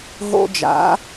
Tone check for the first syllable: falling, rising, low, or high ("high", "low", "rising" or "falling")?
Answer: high